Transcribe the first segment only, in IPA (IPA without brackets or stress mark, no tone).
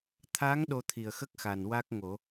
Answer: t̪ʰ